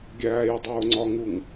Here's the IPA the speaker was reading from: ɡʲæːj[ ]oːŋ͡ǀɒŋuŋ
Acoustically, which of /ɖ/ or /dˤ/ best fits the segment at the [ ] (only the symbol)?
dˤ